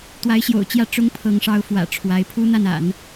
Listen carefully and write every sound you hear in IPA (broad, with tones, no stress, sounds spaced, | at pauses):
t̪ w a˧˥ ɪ̯ ɕ j o̰˨˩ ʊ̯ t͡ɕ j ä˥˩ ʈ͡ʂ ʊ˧˥ ŋ pʰ ɤ˧˥ ŋ ʂ ɑ˧˥ ʊ̯ f w ä̰˨˩ ʈ͡ʂʰ w a˧˥ ɪ̯ pʰ u˥ n̪ a˥˩ n a̰˨˩˦ n